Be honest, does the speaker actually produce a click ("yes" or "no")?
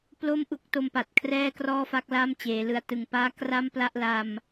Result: no